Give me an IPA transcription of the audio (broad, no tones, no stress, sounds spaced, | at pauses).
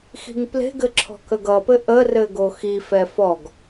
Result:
x i̤ ŋ p l e̤ ɡ ɘ ǁʰ ɔ̤ k ə ɡ ʌ p ɘ ʔ ə r ɘ ɡ o x i f ɛ f ɔ ɡ